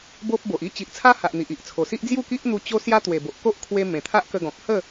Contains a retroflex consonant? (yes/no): no